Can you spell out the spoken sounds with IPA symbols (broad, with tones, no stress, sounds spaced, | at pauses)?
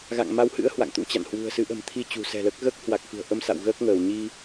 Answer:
ɣ a̰˧˨ ŋ m a˨˦ w h ɨ̰˧˥ ə̯ h w a̰˧˨ ŋ t̪ ṵ˧˥ t͡ɕ a̰˧˨ n h w ṳ˨˩ ə̯ s ɨ˨˦ ʔ ə̤˨˩ m t̪ʰ i˧ t͡ɕ ṳ˨˩ s ɛ̤˨˩ l əː˦˥ k̚ ɣ əː˦˥ k̚ h w a˨˩ k̚ f ɨ̤˨˩ ə̯ ʔ ə˧ m s a̰˧˨ w ɣ əː˦˥ k̚ ŋ əː˧˩ w ɲ i˧